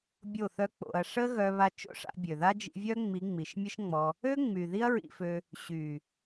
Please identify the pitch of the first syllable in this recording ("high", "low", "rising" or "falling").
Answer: falling